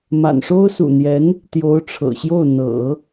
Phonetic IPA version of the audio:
ma̰˨˩nʂo˥ʊ̯ sṵ˨˩n̪jɛ˧˥n | t̪jo˧˥ʊ̯ʈ͡ʂʰɤ̰˨˩ɕjo˥˩ʊ̯ n̪ɤ̰˨˩˦

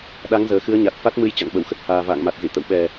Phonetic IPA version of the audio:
ɗa˨˦ŋzəː˨˩xɨ˨˦ə̯ɲa˨˩t̚ fa˦˥t̚mɨ˧j t͡ɕa̰˧˨ŋɓə˧˩wxə˦˥t̚ haː˨˩ va̰ː˧˨ŋma˨˩t̚zḭ˧˨ t̪ə̰˧˨wɓɛ˨˩

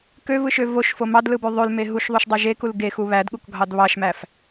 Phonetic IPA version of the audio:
køvɯʃø voʃfo mɑdlɯbø ðˤølme ɦuʃðˤuʃdˤɑ ʒekul ɡexu βædɠukɡʱɑd βɑʃmæf

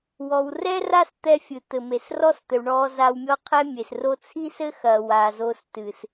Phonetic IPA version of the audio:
wɔ˨wrɛ˦ra˦s t̪ɛ˦fʲɨ˨t̪ɘ˨ me˨srɔ˦st̪ɘ˨w ɳɔː˧za˧wmʲɔ˦qʰɛ˦ mʲe˨s ro˧t͡sʰi˦sɘ˦xɐː˨ wa˨zo˧s tɨ˨s

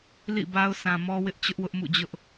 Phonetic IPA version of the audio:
lḭ˦˨ba˦ʊ̯ sʰã˨mɔ˦wɪ˦ʔ t͡ɕʊ˦ʔwʊ˦ʔmṵ˦˨ d͡ʑʊ˦ʔ

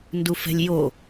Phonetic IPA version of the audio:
ndufɛ̤lʲjo

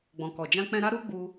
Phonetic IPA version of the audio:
ɡ͡bɔ̃˨kɔ˨d͡ʒã˧k͡pɛ̃˧ ɾa˦ɾu˦ɡ͡bu˧

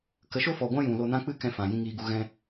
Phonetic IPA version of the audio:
kə˨˦ʃo˦fɔ˨ɡʷã˦ jũ˨lo˧nã˦ k͡pɨ˦kɛ̃˧ fã˨jĩ˧ ŋiː˧ɡu˧ ɣɛ̃˧

